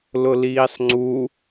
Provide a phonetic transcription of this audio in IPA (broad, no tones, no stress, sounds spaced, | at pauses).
l ʊ l iː sˤ ŋ͡ǀ u